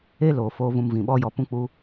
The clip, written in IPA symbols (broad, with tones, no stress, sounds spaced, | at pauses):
e˦ l oː˨ f oː˧ v ũ˧ m v ĩ˨ ɓ ɔ˦ j ɔ˧ p ũ˦ k͡p u˦